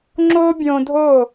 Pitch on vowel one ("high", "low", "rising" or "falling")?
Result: high